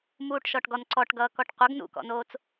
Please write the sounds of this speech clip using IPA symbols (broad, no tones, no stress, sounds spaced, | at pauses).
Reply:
m uː ʈ ʃ ɔ ʈ ɡ ɔ n ǀ ɔ ʈ ɡ ʌː k ɔ ʈ qʷ ʌ ɡ n ṵ k ɔ̰ n oː t͡s